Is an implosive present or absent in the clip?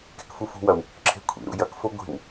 absent